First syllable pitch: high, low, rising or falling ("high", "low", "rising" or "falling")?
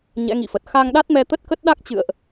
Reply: rising